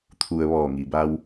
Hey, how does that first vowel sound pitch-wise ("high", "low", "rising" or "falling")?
low